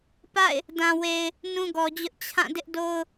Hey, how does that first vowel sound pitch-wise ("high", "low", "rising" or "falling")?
falling